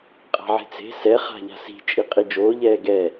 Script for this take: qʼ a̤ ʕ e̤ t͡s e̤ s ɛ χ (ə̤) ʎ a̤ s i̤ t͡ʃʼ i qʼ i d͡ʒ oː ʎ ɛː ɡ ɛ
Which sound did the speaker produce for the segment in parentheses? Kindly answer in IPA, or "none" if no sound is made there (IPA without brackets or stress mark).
a̤